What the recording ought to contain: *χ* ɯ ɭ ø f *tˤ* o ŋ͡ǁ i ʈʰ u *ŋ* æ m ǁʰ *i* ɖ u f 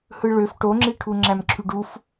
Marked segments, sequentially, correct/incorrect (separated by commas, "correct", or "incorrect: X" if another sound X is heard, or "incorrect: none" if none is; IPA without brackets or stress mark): incorrect: h, incorrect: ʈ, incorrect: ŋ͡ǁ, incorrect: y